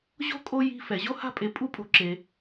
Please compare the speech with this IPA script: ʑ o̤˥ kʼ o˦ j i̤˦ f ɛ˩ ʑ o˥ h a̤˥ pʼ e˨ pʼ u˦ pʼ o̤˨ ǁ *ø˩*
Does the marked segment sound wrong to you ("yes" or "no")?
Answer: yes